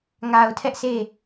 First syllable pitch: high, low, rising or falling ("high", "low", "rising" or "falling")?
low